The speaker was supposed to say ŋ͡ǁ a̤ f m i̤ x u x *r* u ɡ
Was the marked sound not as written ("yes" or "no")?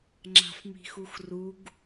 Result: no